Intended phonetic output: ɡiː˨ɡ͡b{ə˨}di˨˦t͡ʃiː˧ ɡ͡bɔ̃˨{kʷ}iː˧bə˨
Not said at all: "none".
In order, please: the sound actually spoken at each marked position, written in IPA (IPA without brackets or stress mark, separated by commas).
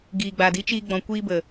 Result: a˨, kʷ